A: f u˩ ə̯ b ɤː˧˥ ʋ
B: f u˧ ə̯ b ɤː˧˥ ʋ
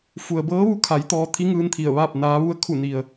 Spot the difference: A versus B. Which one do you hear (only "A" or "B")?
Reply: A